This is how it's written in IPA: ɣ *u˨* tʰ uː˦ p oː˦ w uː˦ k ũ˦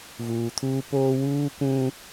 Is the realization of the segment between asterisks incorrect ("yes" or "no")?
yes